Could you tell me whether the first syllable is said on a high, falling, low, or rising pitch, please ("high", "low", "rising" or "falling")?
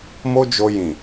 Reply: high